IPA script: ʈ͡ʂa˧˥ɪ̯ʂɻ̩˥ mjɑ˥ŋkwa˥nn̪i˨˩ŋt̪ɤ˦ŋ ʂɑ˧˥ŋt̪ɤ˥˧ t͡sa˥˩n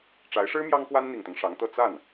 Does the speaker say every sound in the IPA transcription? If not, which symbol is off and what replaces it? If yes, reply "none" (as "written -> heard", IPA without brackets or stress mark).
none